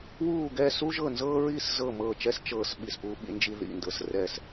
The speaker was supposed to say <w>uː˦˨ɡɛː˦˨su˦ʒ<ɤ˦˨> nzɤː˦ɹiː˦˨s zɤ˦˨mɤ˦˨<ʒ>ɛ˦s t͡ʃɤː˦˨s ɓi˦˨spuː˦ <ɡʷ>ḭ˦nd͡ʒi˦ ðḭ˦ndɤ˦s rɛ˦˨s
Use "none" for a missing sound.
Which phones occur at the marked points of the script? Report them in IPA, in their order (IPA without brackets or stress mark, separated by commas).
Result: w, ɤ˦˨, t͡ʃ, ɓ